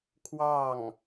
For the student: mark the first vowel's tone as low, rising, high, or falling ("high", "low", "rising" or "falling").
falling